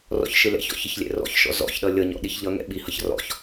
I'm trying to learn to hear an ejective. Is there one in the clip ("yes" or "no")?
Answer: no